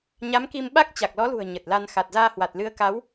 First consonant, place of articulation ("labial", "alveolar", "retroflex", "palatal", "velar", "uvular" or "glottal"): palatal